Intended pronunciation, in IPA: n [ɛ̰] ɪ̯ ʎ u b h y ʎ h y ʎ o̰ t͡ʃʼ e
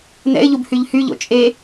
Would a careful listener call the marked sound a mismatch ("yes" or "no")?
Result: no